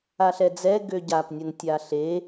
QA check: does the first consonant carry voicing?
no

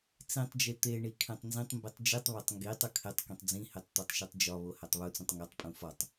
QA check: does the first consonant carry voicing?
no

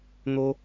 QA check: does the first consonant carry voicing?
yes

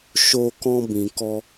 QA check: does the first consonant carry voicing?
no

